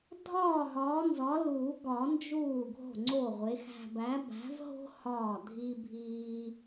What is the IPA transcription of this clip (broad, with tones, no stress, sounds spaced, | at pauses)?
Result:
dʱ ɒː˥˩ ɦ ɒː˨˥ n z ɒ˨˥ l uː˨˩˦ ɡ ɒ˨˩˦ n d͡ʒ uː˥˩ ɡʱ o̤˥˩ ŋ͡ǀ oː˥˩ ʁʷ e˨˥ x æ̤˥˧ b æ˨˥ b æ̤˨˥ v ɦ o̤˥ h ɒː˥˩ dʱ i˥ bʱ iː˥